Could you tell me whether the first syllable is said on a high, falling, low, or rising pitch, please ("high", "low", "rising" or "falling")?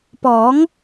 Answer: rising